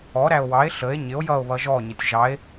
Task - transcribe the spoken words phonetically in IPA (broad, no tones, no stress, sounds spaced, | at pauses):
ɔ ɾ æ o̯ w ɑ e̯ ɬ ə e̯ ɲ ɪ o̯ j ʌ o̯ β ʌ ʒ ɔ ɲ ə tʲ ʒ ɑ e̯